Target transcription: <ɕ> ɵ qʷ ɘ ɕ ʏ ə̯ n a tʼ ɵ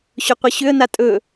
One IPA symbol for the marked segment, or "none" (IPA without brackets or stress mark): ɕ